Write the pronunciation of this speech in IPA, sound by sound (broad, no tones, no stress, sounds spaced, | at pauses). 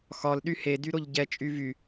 x ɒ l ɗ y h e d y ɾ o ʎ ɟ ɛ t͡ʃʼ y v y